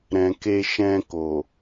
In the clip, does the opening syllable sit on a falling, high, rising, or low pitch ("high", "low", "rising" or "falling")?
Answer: low